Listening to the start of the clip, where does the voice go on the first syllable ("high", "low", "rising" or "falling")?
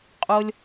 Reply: high